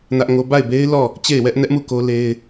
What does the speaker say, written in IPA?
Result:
nä˦ʔŋo˦ ba˦˨ɪ̯be˦ɪ̯ lɔ˦˨ | t͡ɕe˦˨ɪ̯wɛ˦ʔnɛ˦ʔmu˦˨ ko˦le˦ɪ̯

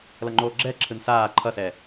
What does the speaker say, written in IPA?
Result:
lʌŋ͡ǃoːɡ͡ǁɛǁʰɯn saː ǃʰʌsɛ

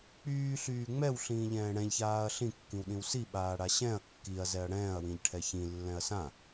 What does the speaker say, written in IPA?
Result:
k͡pyːɬyː ŋ͡mɛwɬĩːʎɛ̃ː ɽɛ̃ʎçaːɐ̯ ɬĩkːĩwɗĩw siɓaːɽa ɕɛ̃ɐ̯ kːiɐ̯zɛɐ̯ ɽɛ̃ːɐ̯wĩʎʈʰɛ çĩlːɛ̃ɐ̯ sã

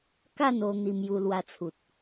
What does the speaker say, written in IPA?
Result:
ka˥˧no˧ n̪i˧mju˧lwa˧t͡sʰu˨t̚

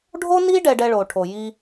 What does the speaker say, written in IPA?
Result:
ɖʱo˥ni˥ ɖɛ˧ɖɛ˧ɭo˩ʈʰo˩ ji˧

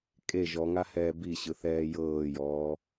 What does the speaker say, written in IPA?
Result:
kʼe ʒɔŋahɛː biɕɯ θɛːjɤːjɔː

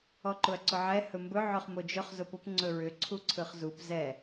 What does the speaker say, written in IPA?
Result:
ɔǃʊɐ̯ǀʊʕɛ hɵmbɵ ʕɵχmod͡ʒɵχ zʊpʊp ŋ͡ǀɵɹʏ ǀʰuǀʰɯχzup zɛ

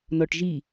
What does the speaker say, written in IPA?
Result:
nɔʈʒi

